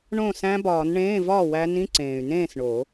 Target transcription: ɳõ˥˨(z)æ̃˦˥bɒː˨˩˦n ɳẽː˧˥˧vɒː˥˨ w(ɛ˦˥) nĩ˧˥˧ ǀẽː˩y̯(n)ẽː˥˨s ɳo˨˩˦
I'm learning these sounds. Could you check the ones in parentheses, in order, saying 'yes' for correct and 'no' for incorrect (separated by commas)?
no, no, yes